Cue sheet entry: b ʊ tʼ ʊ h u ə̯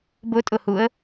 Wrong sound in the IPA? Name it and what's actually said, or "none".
none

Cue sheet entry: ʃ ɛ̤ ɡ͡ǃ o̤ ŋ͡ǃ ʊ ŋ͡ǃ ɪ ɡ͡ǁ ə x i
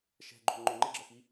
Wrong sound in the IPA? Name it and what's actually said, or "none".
none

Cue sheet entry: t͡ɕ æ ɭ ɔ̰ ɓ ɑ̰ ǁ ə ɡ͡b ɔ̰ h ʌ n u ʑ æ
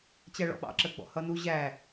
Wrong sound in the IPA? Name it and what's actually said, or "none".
none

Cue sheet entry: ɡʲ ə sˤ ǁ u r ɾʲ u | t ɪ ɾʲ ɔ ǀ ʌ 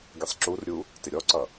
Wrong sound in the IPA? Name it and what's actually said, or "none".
none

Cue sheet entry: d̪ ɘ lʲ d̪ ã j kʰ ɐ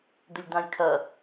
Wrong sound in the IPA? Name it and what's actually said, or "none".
none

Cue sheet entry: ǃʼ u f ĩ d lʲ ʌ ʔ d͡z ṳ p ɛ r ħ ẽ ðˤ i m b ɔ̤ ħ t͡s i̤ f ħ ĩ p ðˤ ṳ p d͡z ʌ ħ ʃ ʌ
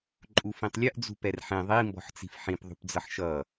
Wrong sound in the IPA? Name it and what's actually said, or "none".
d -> tˤ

